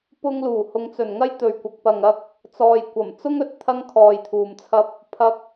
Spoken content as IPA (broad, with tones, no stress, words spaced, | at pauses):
pʊ˧ŋluː˨˩ hʊ˨ŋt͡sɵ˨˩nŋɐ˥j t̪ɵ˨ɥkʷɐ˨k̚pɐ˨ŋɐ˧k̚ | t͡sɔː˨jkʷɐ˨˩mt͡sʊ˥ŋɵ˨t̚ t̪ʰɐ˥ŋkʰɔː˨jt̪ʰuː˨mt͡sʰɐ˧p̚ | pʰɐ˧k̚